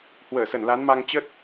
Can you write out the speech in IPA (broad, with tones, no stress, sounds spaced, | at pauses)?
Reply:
h w əː˧˩ s ə˧˩ n l a˨˦ n m a˧ ŋ t͡ɕ ə˦˥ t̚